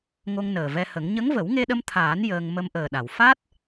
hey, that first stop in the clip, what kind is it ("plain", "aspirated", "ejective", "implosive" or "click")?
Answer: implosive